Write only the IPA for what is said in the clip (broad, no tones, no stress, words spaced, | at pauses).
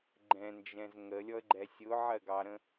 ɡ͡ǃɛ̃nd͡ʒɛ̃z ŋəlʲɔə̯ɡ͡ǃɛ sʲʊʕɜɡɑɾə̃